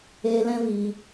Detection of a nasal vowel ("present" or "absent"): present